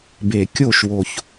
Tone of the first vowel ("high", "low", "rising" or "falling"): low